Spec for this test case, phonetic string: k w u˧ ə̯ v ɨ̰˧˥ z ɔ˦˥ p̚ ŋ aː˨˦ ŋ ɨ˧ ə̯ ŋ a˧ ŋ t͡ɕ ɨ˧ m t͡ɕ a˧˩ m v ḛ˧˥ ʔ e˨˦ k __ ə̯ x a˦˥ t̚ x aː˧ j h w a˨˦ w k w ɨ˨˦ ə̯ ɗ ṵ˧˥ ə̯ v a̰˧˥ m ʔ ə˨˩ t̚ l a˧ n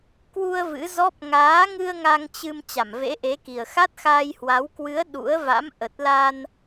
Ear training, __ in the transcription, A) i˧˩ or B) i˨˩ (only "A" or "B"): B